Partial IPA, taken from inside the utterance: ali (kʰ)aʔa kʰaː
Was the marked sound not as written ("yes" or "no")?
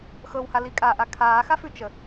yes